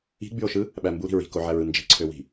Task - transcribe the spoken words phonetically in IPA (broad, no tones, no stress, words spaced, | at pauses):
i̤ɡ͡byo̯ʃɯ | ɓæmbuɾi̤ ɹi̤koʕæɹɯ nd͡ʒi̤ǀʰøwi̤